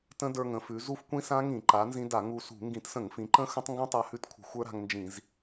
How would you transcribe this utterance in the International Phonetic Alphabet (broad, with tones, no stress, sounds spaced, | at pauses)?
t ə̃˦˥ d ə˞˧ ŋ ə̃˩˧ f ʉ˩˧ z u˦˥ f kʷ ĩ˦˥ s ã˦˥ ŋ ĩ˧˩˧ ǃ a˩˧ n z ĩ˧ d a˧˩˧ ŋ u˧ s ṳ˧˩˧ ŋ ɡ ĩ˧˩˧ t s ə̃˧˩˧ ŋ f ĩ˩˧ ǃ ə̃˦˥ x ə̃˦˥ tˤ ŋ ɡ ũ˦˥ tˤ a˧ h ʉ˦˥ t kʷʰ ə̤˧˩˧ xʷ ə˞˦˥ ɾ a̤˧ ŋ n d͡ʒ ĩ˧˩˧ z